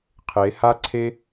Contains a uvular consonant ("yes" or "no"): yes